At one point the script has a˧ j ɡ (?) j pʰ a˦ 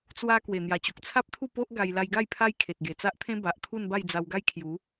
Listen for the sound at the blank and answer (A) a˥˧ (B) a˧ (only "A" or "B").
A